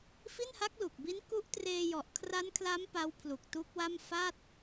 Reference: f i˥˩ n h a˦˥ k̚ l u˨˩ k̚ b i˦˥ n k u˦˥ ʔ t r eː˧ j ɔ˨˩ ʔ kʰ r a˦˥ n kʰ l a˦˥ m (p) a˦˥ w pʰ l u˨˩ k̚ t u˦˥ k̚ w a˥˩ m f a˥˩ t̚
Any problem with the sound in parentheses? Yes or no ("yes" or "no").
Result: no